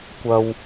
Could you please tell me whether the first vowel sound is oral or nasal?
oral